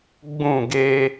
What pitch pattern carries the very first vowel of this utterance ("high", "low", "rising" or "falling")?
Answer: falling